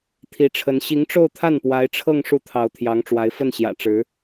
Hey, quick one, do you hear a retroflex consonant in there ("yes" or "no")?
yes